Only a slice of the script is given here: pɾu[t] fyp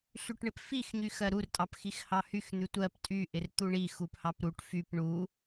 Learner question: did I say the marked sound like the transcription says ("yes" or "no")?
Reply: no